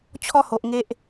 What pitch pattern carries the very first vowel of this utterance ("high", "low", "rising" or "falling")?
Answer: high